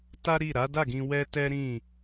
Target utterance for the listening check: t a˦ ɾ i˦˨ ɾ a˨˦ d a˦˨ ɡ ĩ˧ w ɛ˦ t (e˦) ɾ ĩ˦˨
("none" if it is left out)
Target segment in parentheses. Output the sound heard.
ɛ˦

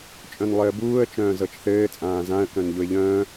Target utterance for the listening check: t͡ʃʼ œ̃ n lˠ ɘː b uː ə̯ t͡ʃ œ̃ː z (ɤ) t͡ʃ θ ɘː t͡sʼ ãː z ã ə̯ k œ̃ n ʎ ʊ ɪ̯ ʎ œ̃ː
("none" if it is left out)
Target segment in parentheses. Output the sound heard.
ɤ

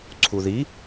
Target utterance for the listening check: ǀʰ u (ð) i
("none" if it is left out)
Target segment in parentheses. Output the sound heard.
ð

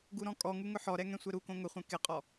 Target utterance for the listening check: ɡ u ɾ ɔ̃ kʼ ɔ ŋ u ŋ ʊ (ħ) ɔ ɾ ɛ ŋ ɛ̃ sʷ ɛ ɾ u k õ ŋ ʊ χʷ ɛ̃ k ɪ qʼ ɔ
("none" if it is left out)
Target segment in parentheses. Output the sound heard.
ħ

